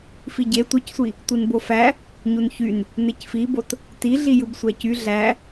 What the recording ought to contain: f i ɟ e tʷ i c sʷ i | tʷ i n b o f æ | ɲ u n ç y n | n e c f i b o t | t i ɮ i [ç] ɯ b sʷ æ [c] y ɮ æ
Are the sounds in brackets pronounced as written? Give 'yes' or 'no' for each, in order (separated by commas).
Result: no, yes